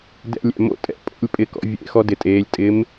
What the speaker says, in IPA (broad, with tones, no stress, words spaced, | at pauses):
dɛ̰˧˥˧lʲɛ̰˧˩mo̰˥˧ tʼɛ̰˥˧pʼo̰˧˥˧lʲ pʼɪ˧˥˧kɔ̰˨˦ vʲḛ˧˥˧xɔ˦˥dɪ˨˦tʼeː˨˦lʲ tʼɪ˨˦m